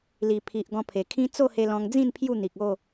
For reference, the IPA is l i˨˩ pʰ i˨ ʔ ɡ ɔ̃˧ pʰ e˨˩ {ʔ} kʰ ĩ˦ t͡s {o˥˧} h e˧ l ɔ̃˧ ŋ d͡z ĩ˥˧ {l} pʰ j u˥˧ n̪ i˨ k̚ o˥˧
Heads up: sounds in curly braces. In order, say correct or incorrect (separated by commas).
incorrect, correct, incorrect